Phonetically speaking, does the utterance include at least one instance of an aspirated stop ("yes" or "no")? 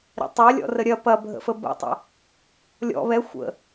no